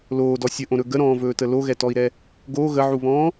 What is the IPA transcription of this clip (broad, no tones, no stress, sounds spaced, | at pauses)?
l oː d ɔ sʲ ə ʔ õ ɾ ɵ ɡ ə ɾ ɔ̃ː v ɵː t ə l o ɣ ɛ t ɔ i̯ ɾ ɛ | ɡ o ɣ ə ʕ u β ɔ̃ː